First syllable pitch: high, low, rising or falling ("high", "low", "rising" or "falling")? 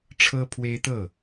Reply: high